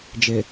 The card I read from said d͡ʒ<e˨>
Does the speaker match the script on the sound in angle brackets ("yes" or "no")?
yes